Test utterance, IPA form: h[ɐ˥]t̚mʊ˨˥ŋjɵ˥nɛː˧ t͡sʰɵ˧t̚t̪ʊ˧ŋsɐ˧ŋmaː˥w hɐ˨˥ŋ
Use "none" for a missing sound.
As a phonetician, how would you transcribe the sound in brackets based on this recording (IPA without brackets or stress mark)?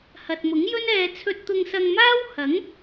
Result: ɐ˨